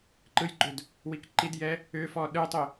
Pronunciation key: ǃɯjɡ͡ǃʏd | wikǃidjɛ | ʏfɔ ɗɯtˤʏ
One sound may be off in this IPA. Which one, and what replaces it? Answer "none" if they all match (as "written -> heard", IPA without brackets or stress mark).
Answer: none